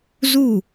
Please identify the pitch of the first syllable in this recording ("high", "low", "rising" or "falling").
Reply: falling